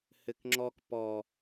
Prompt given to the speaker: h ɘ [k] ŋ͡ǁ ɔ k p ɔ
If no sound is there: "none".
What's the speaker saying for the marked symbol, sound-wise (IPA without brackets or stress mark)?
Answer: k